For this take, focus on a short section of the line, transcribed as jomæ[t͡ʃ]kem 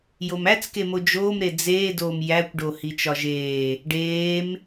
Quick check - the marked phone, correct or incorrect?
incorrect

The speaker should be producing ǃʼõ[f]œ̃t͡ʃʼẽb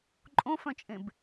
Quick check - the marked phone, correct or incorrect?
correct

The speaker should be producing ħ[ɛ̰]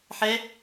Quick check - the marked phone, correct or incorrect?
incorrect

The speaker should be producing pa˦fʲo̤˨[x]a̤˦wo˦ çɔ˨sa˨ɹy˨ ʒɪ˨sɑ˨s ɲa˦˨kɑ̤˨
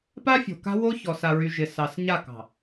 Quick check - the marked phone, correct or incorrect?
incorrect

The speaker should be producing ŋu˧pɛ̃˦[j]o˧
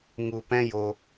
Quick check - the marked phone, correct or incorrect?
correct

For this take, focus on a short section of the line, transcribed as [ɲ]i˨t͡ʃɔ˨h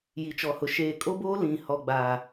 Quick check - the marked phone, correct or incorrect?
incorrect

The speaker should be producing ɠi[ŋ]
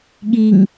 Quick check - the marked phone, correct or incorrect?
correct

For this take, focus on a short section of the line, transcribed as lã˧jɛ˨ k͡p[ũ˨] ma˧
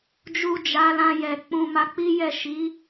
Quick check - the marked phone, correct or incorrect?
correct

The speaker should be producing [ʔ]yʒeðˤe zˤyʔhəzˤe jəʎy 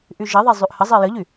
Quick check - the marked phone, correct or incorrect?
correct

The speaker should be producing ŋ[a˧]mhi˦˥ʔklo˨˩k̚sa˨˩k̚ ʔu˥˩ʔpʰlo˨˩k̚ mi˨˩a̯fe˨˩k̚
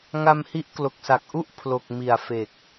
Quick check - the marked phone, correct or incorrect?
correct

